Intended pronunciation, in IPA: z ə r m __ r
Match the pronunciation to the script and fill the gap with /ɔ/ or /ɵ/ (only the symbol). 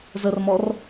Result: ɔ